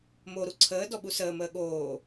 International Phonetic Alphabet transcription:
m o ɾ u ǀʰ əː d ɔ ɓ u s əː m əː ɠ oː

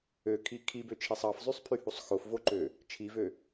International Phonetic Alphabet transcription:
ø kʰ i kʰ i b ø t͡ʃʰ i sˤ ɑ f zˤ y sˤ pʰ y h u sˤ x o f v o ǃ ø | t͡ʃʰ i v ø

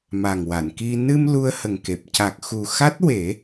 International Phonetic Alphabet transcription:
m a˨˩ ŋ w a˨˩˨ n k i˧ n ɨ˧ m l u˧ ə̯ h ə˨˩ ŋ k e˨˩ p̚ c a˨˩ k̚ x u˨˩ x a˦˥ t̚ w e˨˩˦

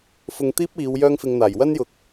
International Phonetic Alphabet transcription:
f ʊ˧ ŋ t̪ iː˥ p̚ iː˨˧ w j œː˥ ŋ f ɪ˧ ŋ n̪ aː˨˩ j w ɐ˥ n j ʊ˨ k̚

